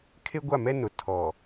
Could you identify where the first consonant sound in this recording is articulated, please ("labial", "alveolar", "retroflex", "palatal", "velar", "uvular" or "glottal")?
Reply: velar